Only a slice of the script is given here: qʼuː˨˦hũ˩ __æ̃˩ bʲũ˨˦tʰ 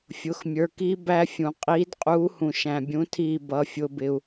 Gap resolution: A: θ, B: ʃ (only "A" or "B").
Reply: B